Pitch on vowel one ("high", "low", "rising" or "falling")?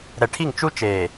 low